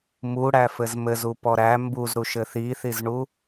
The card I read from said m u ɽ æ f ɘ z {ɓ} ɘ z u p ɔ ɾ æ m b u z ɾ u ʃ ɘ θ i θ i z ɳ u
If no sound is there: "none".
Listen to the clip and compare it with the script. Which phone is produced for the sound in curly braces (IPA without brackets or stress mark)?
m